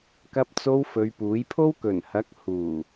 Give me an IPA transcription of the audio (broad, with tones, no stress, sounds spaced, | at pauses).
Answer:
k ɐ˧ p̚ t͡s o˧ w f ɵ˨˧ ɥ p uː˨˥ j pʰ o˥ w k ɵ˨˩ n h ɐ˨˥ k̚ h uː˨˩